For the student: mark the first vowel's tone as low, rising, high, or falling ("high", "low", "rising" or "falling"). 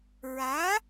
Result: rising